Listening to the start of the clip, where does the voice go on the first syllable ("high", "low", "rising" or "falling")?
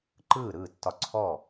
falling